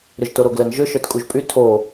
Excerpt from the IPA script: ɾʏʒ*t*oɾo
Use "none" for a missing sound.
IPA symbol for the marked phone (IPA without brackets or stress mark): t